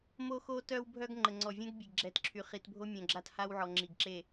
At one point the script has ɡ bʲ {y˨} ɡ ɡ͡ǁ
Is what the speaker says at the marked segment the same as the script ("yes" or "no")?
no